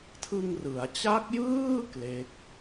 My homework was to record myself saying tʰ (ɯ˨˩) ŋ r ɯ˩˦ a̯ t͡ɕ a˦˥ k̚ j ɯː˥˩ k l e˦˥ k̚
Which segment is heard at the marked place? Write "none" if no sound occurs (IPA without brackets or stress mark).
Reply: ɯ˧